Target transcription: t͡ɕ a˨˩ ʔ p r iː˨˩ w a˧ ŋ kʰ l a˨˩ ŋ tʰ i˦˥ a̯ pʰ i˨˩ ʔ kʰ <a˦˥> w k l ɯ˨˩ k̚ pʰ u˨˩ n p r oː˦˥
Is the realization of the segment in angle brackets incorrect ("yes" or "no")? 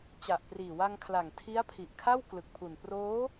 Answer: yes